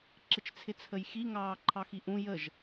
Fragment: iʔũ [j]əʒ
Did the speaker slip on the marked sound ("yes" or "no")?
no